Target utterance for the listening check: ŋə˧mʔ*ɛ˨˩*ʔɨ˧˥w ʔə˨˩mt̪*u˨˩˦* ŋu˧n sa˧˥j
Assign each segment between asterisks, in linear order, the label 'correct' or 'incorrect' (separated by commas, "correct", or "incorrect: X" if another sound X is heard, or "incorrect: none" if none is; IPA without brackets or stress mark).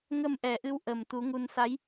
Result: correct, correct